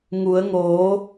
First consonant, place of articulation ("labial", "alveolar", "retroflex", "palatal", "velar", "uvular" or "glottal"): velar